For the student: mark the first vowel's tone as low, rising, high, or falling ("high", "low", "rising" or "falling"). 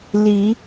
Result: rising